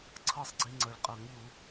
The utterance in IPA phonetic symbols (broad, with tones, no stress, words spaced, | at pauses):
ǀʰɤ˥˧sˤɡ͡ǀi˧ ŋ͡ǀɤ˩ɭqʼɤ˨˩˦ŋʎu˨˩˦